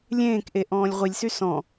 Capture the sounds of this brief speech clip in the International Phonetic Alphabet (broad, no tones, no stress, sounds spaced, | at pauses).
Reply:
lʲ ẽː k ʔ e ʔ ɔ̃ː lʲ ʁʷ i lʲ s y s ɔ̃